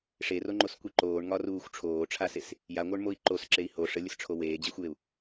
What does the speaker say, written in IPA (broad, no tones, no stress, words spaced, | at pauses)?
ʂeroŋ͡ǃoskʷi ǃoːɳŋɒruːxʷ ʈ͡ʂʰoːʈ͡ʂʰases | jaŋʷə˞ɳmoi̯ ǃosǁei̯ ho ʂəlʲəsʈ͡ʂʰo weːd͡ʑexʷjeu̯